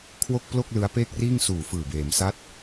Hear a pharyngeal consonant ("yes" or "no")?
no